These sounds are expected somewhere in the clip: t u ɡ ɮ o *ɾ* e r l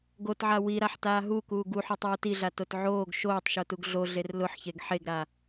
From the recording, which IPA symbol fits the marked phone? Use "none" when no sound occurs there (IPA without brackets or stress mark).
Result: ɮ